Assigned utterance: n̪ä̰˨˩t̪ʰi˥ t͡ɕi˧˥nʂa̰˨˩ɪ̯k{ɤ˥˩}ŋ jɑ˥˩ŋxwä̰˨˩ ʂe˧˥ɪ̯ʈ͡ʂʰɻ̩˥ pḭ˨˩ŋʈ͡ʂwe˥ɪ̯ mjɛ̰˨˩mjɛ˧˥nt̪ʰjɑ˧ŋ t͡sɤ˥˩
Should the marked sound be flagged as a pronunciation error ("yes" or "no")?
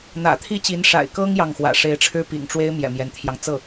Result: yes